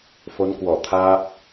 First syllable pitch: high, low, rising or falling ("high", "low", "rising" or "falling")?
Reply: rising